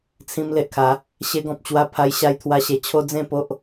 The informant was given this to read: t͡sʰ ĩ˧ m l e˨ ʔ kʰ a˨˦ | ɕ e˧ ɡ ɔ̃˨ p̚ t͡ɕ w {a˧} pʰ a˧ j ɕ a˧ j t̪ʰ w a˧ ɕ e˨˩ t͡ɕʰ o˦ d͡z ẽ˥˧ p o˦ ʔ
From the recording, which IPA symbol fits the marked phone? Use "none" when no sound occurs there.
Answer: a˧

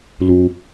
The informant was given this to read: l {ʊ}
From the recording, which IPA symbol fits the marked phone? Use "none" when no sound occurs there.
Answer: u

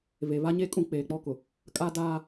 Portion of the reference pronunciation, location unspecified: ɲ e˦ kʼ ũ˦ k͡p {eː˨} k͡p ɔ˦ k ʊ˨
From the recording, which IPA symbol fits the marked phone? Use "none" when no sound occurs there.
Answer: eː˨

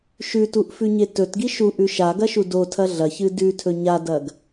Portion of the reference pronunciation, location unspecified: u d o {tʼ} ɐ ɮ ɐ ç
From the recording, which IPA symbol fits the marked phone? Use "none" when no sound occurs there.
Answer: tʰ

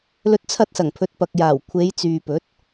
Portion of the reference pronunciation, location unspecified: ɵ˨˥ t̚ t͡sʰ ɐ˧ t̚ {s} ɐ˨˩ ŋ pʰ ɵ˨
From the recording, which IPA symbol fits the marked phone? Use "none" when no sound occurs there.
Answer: s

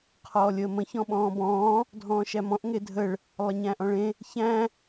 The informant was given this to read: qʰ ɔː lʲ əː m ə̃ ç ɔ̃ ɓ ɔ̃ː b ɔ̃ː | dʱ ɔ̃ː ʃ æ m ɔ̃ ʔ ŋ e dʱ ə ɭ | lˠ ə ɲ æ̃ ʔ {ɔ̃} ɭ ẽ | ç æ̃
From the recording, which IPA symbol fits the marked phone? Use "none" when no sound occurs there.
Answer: ɔ̃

